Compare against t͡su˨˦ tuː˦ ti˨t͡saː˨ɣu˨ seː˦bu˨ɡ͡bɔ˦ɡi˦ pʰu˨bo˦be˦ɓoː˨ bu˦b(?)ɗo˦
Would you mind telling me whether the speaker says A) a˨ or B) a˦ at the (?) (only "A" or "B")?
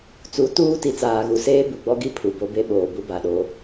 A